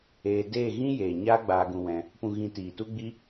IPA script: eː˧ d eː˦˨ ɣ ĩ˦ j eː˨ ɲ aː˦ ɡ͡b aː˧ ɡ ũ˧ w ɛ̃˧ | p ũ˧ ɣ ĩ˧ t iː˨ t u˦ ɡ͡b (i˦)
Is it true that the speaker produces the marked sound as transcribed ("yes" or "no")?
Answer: yes